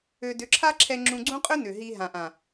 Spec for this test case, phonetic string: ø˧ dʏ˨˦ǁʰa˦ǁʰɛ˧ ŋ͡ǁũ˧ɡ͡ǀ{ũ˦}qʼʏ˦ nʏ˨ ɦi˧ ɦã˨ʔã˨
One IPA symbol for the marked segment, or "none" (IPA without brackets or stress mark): ũ˦